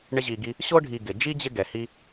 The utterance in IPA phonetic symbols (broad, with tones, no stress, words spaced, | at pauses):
ɳɪ˦ʑi˨ɡi˦ | ɕo˥ɖʱi˨ɡɪ˩ d͡ʒi˥d͡ʑɪ˦ ɡɛ˩hi˦